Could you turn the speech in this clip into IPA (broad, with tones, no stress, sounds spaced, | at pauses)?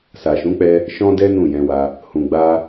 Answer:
s a˨ ʃ ũ˨˦ k͡p ɛ˧ | ʃ ɔ̃˦ d ɛ˦ n ũ˦˨ j ɛ̃˧ w a˧ | h ũ˨ ɡ͡b a˧